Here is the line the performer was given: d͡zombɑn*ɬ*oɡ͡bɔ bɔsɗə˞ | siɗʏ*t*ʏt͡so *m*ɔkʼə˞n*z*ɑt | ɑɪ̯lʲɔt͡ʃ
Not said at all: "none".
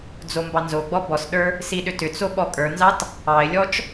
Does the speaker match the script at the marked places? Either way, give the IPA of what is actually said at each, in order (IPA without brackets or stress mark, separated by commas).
z, t, ɓ, z